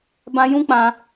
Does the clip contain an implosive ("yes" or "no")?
no